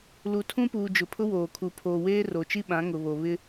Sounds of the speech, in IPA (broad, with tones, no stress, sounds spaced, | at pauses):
l u˨ tʰ ũ˦ p uː˨ d͡ʒ ʊ˨ pʰ ʊ˦ w oː˨ kʰ u˨ pʰ oː˨ w eː˦ r o˨ t͡ʃ i˦ ɓ ã˨˦ ŋ ʊ˨ β o˨ β ɪ˦